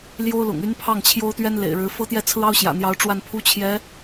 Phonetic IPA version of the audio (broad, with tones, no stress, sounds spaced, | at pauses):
l j o˥ ʊ̯ l ʊ̰˨˩ ŋ y˥ n pʰ ɑ˥˩ ŋ t͡ɕʰ j o˥ ʊ̯ t̪ ɥ ɛ˥ n l ḛ˨˩ ɪ̯ ɻ ɻ̩˧˥ f ɤ˥ t̪ j ɛ˥˩ t͡sʰ ɹ̩˥ ɑ˥ ʊ̯ ɕ j ä̰˨˩ n̪ j ɑ˧˥ ʊ̯ ʈ͡ʂ w a˥˩ n pʰ u˥ t͡ɕʰ j ɛ˧˥